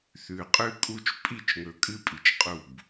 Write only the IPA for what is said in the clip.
θ ʉ˨ qʼ ʉ˦ kʼ u˦ t͡ʃ pʼ i˦˨ t͡ʃ ŋ ɵ˨ kʼ ɨ˦ pʼ i˨ t͡ʃ qʼ u˦˨ b

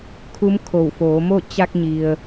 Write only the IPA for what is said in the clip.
kʰ u˧˥ m kʰ o˧˩ w f oː˩˧ m o˥˨ t͡ɕ a˧ k̚ ɲ i˩ ə̯

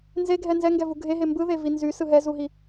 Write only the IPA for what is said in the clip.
n z e ɡʱ ɛ n z ɛ ŋ ɡ ɛ v u ɡʱ e ɦ e m b ɯ ð e v i n z y s ɯ ɦ ɛ z u ɦ i

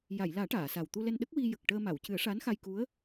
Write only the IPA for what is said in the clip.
j a˨˩˨ j l aː˨˩˦ ʈ aː˨˩˨ s a˨˩ w t̪ u˧ l ɛ˧ n ɗ ə˦˥ k̚ w i˧ j ə˨˩ k̚ ʈ əː˧ m a˨˩˨ w c ɨ˨˩˦ ə̯ ʂ a˧˥ n x a˧ j k u˧˥ ə̯

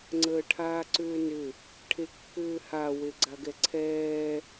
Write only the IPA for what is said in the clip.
ŋ͡ǀ əː ʈʰ aː ǀ ʏː n ʏ | ʈʰ e kː ʏː h a w e ɡ͡ǀ a ɡ ɛ ǀʰ ɛː

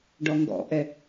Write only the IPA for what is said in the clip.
ɖ ɔ ŋ ɡ ɔ̰ ʔ ɛ

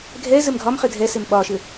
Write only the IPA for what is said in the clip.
ɡʱ ɛ z ɘ m ɡʱ ɒ m χ ɘ dʱ ɛ s e m ɓ ɒ ʃ ɘ

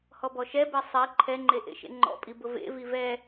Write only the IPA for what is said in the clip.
h ɔ b ɔ ʃ ɛ b e sˤ e ǃʰ ɛ ŋ͡ǃ e ʔ ḛ ʃ ḛ ŋ͡ǃ ɔ̰ pʼ i b ʊ v ḛ v i v ɛ

